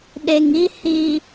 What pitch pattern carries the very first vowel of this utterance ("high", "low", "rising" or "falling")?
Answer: low